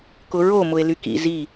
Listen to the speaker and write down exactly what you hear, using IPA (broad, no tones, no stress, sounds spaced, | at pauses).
k ʊ ɹ o m ʊ e̯ l y k ḭ z i